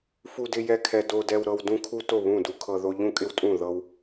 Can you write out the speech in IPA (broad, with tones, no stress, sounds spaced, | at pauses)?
f u˦ d ɪ˦ j ɛ˦ kʰ ɛ˦ d o˦ d ɛ˦ w ɾ ɤ˦ w d ũ˦ kʰ u˦ t o˦˨ β ũ˦˨ d u˦ kʰ ɤ˦ ð o˦ ʎ ũ˦˨ kʼ ɪ˦ w tʼ ũ˦˨ ð ɤ˦ w